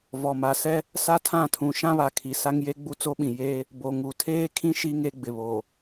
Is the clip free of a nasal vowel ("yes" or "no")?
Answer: no